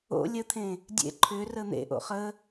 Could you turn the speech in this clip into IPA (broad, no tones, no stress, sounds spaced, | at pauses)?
o̰ lʲ ə t̪ʰ ẽ | dʲ ḛ ǃʰ ʏ r ə n̪ ḛ ʔ o̰ χ ə